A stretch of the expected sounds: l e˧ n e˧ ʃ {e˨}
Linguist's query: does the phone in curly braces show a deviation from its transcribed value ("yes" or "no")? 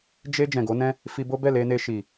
yes